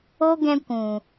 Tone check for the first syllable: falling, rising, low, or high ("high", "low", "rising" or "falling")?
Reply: high